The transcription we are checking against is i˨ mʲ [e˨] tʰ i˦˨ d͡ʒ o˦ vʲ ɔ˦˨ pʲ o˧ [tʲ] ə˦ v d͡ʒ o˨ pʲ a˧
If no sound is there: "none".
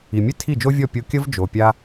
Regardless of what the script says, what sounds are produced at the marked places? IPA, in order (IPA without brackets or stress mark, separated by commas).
e˦, kʲ